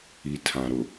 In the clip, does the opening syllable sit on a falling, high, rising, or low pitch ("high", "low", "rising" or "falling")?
low